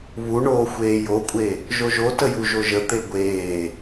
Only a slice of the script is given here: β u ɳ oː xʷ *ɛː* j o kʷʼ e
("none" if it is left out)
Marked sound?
eː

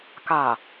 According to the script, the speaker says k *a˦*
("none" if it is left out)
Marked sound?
a˨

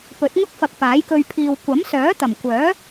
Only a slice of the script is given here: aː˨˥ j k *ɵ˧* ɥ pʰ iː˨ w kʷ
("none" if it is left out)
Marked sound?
ɵ˧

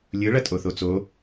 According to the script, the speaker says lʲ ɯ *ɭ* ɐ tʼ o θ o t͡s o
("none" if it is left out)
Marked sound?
ɭ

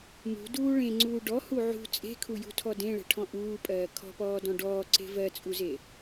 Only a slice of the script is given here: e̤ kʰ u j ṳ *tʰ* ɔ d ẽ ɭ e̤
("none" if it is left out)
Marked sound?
tʰ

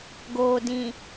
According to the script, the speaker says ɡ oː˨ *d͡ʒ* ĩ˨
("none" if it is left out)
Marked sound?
d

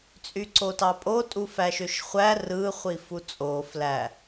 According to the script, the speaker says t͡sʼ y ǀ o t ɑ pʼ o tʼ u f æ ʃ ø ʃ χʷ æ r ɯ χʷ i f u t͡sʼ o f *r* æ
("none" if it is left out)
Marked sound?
l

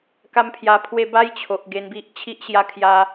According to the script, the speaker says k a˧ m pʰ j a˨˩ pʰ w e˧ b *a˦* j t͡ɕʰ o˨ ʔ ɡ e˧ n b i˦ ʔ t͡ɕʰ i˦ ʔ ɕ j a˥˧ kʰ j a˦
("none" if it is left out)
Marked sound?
a˦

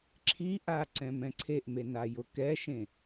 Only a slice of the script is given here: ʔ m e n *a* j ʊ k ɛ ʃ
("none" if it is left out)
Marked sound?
a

